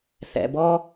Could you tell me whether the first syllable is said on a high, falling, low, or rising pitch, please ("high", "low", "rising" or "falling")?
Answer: low